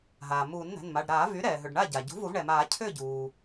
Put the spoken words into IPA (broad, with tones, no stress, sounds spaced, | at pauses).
ɦ aː˩ m uː˨˩˦ n n̪ ɛ̤˩˧˩ n m a˩˧˩ ɖ ɾ aː˨˩˦ v y˩˥ ɾ ɛː˩ ɦ ʏ˩ ɖ ɳ a˥˩ ɟ a˩ ɟ ṳ˩˥ v u˨˩˦ v ɳ ɛ˩ m aː˨˩˦ cʰ ʏː˥˩ ɟ uː˩